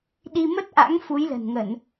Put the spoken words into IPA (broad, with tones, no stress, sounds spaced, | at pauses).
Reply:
ɗ i˧ m ə˦˥ t̚ ʔ a̰˧˥ ŋ f u˨˦ j l ə̤˨˩ n ŋ ə˧˩˨ n